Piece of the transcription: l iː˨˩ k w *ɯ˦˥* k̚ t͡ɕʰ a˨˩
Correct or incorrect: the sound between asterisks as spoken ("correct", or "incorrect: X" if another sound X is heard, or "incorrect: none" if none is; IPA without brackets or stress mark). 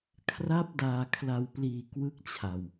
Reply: correct